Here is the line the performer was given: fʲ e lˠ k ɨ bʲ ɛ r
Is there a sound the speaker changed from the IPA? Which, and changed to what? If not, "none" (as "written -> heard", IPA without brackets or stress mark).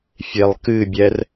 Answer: none